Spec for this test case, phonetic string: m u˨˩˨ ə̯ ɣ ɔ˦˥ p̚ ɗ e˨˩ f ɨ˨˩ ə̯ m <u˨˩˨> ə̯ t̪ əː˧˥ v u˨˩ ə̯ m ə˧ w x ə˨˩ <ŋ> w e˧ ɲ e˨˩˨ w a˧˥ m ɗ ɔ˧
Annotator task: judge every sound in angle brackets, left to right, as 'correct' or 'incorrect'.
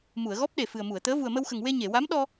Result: correct, correct

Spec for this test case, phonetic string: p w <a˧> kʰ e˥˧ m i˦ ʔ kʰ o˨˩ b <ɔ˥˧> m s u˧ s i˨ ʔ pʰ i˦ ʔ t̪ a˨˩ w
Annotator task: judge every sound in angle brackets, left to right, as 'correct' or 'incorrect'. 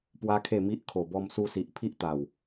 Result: incorrect: a˦, incorrect: ɔ˧

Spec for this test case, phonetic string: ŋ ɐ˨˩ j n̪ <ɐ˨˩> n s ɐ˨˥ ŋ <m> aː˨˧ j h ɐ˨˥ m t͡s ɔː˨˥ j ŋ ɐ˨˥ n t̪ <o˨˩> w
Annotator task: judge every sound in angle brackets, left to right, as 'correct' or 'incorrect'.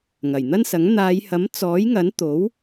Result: incorrect: ɐ˥, incorrect: n̪, incorrect: o˨˥

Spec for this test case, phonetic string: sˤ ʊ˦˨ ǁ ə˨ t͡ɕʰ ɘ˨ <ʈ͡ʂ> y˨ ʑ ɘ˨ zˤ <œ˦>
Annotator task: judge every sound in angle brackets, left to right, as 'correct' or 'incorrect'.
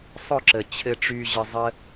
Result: correct, incorrect: ə˦

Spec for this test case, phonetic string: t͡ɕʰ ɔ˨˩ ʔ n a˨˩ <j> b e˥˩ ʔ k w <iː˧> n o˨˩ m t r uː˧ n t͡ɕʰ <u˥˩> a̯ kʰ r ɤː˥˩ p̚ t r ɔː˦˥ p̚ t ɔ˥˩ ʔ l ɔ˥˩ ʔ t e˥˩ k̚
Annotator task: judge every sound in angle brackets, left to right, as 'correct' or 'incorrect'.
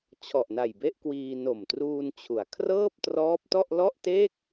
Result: correct, correct, incorrect: u˩˦

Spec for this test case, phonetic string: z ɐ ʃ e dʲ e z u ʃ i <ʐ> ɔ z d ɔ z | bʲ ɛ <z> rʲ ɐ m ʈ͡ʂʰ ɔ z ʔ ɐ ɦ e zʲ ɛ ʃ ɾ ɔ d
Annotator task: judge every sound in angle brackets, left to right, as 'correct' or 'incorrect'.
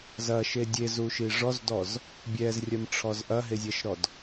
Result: correct, correct

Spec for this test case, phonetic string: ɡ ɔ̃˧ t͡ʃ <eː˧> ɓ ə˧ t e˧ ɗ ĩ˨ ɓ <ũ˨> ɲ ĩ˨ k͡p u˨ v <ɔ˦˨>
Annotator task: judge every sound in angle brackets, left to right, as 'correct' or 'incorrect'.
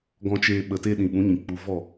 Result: correct, incorrect: ũ˨˦, correct

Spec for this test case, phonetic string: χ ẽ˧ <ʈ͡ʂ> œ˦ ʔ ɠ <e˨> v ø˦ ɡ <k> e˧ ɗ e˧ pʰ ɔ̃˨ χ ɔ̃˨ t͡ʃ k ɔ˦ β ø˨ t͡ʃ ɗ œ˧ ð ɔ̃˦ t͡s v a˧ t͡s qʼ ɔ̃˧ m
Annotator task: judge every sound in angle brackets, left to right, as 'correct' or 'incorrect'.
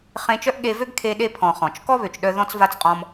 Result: incorrect: t͡ʃ, incorrect: e˧, incorrect: kʰ

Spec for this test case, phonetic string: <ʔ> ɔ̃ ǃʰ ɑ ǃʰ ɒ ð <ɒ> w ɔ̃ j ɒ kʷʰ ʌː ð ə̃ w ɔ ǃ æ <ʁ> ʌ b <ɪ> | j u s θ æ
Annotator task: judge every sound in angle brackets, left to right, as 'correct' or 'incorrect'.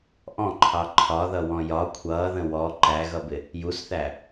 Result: correct, incorrect: ʌ, incorrect: ɣ, correct

